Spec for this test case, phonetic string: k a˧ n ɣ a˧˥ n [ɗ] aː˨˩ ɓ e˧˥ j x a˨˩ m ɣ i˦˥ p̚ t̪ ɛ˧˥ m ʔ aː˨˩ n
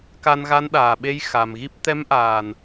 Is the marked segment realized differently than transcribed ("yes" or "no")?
no